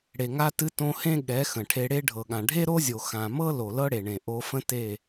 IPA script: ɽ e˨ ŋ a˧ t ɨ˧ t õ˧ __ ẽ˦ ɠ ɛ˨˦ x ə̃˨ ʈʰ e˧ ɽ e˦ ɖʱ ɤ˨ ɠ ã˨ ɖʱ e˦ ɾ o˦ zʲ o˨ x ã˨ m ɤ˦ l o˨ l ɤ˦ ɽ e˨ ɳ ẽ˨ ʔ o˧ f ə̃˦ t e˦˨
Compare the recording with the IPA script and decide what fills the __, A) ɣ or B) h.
B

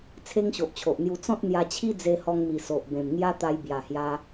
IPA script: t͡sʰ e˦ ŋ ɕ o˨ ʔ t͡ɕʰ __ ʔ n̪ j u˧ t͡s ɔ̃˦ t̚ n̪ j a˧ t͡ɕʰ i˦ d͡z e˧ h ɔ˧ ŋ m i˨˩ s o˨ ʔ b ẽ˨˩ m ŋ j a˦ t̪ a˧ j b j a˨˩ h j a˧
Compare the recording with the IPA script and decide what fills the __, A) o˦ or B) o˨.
B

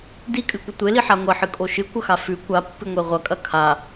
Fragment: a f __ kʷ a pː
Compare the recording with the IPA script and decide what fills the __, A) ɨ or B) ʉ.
B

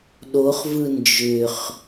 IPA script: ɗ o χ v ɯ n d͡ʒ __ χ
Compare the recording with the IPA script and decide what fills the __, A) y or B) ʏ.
B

